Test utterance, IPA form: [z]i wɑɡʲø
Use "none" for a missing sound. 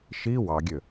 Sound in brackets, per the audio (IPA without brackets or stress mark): ʃ